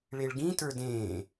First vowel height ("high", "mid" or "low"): mid